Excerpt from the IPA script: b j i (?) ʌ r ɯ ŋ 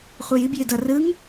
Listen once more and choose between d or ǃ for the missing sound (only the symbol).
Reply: d